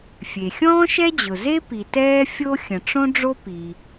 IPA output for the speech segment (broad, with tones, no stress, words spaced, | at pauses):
fʲe˩ xʲɔ̃ː˥ʃɛ˥d͡ʑʊ˩ ze˥pi˩ tɛː˥ fʲo˥ xʲə̃˩ʈ͡ʂõ˥ ɖ͡ʐo˥pi˩